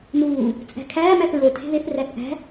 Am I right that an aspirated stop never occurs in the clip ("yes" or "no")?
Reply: no